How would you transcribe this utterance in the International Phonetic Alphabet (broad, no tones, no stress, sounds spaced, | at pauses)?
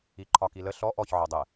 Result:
i ǃʰ ɒ k i l ə ɬ ɔ ʔ ɔ ç ʕ ɔ dˤ ɛ